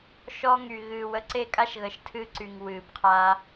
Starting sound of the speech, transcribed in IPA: ʃ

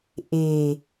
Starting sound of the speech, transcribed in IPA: ʔ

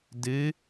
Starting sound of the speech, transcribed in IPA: d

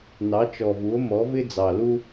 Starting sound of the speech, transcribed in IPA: n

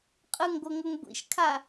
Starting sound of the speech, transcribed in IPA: qʼ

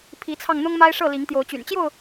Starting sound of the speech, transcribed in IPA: pʰ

